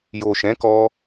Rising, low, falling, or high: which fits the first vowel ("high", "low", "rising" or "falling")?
low